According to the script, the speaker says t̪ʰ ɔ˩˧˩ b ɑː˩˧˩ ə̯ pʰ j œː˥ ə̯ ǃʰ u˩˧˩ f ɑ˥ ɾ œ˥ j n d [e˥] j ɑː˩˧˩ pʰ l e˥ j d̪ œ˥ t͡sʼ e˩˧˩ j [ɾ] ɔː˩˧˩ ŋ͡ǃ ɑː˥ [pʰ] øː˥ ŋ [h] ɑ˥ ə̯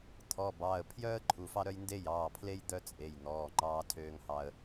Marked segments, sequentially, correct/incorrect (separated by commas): correct, incorrect, incorrect, correct